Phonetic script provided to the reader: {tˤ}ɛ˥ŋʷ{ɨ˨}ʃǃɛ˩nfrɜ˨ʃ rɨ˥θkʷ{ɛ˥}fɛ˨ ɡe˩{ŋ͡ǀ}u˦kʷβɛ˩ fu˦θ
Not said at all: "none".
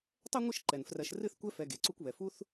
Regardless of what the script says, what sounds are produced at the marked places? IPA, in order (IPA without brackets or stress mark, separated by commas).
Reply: tˤ, ɨ˦, ɛ˥, ǀ